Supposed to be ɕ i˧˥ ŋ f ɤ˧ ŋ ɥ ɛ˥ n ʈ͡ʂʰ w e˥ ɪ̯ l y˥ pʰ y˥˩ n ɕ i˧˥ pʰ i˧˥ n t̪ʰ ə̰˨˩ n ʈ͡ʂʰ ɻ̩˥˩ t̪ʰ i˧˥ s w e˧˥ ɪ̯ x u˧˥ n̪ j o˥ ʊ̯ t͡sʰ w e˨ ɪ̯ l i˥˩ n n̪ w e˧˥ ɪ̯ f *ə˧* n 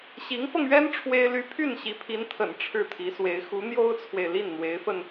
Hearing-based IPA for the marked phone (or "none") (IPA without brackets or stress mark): ə˧